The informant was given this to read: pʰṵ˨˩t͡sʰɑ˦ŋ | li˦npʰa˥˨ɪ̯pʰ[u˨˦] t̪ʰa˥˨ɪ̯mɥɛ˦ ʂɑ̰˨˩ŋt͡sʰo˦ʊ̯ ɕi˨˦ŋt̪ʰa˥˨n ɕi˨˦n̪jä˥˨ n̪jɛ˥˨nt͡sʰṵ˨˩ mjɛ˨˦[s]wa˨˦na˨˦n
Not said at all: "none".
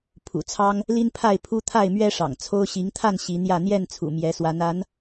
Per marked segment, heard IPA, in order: u˦, s

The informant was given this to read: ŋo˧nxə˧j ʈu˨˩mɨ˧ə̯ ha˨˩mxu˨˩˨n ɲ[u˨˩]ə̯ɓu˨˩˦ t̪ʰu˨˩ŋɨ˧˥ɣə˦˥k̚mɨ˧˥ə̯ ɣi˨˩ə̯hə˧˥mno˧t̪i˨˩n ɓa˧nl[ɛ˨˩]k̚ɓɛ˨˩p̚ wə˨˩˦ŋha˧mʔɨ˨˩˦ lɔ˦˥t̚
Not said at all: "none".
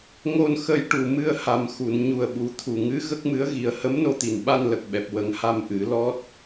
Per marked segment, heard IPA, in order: u˨˩, ə˨˩

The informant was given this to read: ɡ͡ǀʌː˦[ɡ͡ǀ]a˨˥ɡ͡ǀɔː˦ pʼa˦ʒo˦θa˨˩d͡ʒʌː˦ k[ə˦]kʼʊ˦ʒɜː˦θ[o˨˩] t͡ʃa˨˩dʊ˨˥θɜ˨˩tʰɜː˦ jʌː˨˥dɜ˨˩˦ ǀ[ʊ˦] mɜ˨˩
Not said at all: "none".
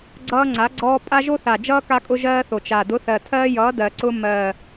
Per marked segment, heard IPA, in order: ŋ͡ǀ, a˦, o˨˩, ʊ˦

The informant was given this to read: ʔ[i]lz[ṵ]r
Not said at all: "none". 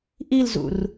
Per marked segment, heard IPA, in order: i, ṵ

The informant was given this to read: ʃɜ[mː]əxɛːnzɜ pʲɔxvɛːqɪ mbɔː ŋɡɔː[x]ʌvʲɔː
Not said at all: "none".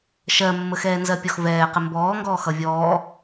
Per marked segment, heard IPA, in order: mː, x

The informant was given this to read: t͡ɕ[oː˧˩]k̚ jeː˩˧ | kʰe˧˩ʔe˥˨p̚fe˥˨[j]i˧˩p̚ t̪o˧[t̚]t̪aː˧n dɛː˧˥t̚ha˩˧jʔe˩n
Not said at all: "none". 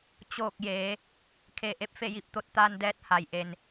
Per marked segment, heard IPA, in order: oː˧˩, j, t̚

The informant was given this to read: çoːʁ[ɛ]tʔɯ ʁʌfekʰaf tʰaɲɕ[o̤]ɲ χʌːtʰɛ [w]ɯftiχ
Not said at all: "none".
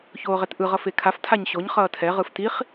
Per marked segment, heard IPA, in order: ɛ, o, ʁ

